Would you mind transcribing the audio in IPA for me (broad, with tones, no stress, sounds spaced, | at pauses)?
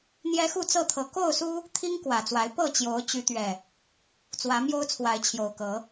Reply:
n̪ j ɛ˦ x u˥˨ t͡s ɤ˥˨ t̪ʰ ɤ˨˩ k o˥˨ ʊ̯ s u˦ | t̪ʰ i˦ ŋ k w ä˨˩ t͡s w a˨˦ ɪ̯ p ɤ˥˨ t͡ɕ j o˨˦ ʊ̯ t͡ɕ y˨˦ t̪ ɥ ɛ˨˩ | t͡s w ä˨˦ m j o˦ ʊ̯ t͡sʰ w a˨˦ ɪ̯ t͡ɕʰ j o˨˩ ʊ̯ k ɤ˨˦